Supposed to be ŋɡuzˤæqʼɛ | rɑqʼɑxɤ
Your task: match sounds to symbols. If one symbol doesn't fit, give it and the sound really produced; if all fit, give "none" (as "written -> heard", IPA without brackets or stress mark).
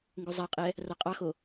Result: ɤ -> o